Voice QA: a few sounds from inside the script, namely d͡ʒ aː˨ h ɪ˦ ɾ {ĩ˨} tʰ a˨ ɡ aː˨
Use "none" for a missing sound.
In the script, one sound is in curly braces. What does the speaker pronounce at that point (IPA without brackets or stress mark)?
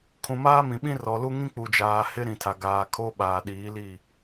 ĩ˨